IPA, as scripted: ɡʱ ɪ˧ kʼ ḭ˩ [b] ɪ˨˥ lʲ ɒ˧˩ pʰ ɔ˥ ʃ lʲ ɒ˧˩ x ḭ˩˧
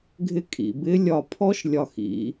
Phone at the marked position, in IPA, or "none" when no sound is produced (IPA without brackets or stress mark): b